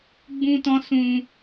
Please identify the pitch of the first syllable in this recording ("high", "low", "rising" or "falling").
high